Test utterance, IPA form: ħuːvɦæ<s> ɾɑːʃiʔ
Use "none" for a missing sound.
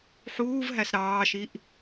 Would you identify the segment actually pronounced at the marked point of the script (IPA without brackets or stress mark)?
s